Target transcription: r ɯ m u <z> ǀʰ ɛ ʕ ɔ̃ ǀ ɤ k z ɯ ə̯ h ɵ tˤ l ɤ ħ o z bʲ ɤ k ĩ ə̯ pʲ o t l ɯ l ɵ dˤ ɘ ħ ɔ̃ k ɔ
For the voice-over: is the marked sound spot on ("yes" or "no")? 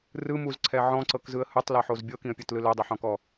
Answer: yes